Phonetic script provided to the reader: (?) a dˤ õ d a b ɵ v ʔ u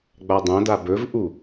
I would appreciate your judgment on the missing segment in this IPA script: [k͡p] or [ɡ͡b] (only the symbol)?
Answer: ɡ͡b